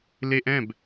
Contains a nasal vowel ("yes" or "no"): yes